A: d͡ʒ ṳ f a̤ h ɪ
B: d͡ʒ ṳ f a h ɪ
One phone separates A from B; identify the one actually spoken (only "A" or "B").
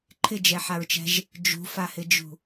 B